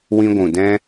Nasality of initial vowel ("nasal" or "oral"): nasal